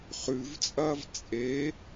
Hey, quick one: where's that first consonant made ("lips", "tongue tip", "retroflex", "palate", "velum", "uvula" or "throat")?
uvula